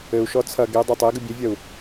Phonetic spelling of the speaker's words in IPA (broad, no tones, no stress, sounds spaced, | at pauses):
ɘ u̯ ʃ ɔ t͡sʰ ɐ ɡ e dˤ a tˤ e ɡ ɨ bʲ ɘ vʲ ɐ u̯